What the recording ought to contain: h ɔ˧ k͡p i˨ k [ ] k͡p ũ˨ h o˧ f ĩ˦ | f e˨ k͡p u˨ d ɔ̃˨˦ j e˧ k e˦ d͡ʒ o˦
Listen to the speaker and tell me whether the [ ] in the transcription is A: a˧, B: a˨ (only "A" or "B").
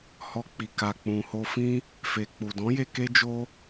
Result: B